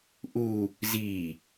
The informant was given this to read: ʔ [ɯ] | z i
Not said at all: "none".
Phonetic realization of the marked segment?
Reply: u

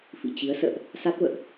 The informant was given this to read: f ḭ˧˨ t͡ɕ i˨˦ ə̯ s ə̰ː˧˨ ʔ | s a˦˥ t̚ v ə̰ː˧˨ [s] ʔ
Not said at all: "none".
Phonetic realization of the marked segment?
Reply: none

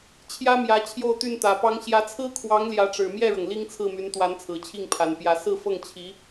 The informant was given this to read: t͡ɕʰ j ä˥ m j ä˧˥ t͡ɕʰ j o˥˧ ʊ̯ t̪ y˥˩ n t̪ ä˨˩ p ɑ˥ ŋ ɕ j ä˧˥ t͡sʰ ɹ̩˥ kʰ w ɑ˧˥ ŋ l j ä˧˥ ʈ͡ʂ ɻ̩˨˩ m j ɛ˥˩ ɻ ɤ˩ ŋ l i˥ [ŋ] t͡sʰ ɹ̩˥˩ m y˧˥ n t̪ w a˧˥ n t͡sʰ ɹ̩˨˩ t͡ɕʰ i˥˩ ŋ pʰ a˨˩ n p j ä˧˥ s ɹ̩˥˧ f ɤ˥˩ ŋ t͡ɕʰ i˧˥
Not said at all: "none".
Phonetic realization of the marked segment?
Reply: ŋ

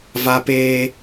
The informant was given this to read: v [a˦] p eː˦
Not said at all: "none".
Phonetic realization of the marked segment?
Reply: a˦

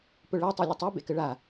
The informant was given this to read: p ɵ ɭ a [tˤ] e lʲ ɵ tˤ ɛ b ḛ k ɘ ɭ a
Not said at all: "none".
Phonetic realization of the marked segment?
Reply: tˤ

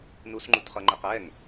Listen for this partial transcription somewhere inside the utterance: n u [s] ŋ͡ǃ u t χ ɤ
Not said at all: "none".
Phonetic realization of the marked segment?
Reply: s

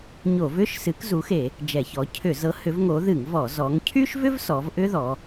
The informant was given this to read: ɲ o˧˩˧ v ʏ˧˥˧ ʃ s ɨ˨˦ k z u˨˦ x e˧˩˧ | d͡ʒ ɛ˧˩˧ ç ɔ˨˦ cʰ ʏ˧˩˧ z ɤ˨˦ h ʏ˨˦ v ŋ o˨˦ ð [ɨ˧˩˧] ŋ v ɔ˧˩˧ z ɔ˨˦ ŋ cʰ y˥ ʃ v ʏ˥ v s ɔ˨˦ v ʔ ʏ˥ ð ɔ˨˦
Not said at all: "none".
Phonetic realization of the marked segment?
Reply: ɨ˧˩˧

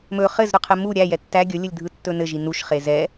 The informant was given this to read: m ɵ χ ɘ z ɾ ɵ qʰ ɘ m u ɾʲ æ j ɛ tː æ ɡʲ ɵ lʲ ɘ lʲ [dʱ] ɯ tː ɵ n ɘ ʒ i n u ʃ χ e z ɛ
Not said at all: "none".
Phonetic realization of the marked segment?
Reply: dʱ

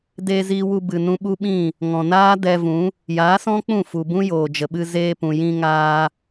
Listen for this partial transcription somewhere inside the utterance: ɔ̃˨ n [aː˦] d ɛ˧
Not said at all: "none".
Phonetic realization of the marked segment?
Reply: aː˦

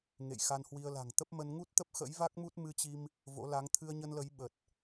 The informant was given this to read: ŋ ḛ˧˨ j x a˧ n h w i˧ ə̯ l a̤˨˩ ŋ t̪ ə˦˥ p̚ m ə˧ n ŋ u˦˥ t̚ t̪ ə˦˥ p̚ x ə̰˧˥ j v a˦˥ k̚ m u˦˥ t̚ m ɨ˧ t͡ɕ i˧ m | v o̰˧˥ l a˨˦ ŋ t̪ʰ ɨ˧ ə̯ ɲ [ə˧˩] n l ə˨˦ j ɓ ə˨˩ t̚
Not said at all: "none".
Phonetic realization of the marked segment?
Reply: ə˧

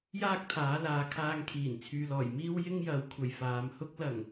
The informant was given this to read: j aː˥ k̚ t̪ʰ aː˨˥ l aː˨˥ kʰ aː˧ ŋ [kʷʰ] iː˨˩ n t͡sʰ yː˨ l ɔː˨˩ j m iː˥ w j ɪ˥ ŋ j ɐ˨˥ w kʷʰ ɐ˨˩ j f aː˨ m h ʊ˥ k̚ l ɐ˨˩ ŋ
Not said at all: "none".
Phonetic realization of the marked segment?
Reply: kʰ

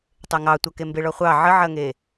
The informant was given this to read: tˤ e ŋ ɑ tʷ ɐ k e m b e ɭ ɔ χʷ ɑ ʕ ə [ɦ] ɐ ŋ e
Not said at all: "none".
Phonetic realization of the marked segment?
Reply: ʕ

